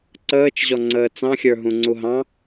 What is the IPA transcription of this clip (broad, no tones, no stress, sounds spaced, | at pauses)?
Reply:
ǀ əː t͡ʃ ʑ ɔ ŋ͡ǀ əː t͡s ɑ̃ xʲ ə˞ ɦ ũ ŋ͡ǀ u ɦ ɑ̃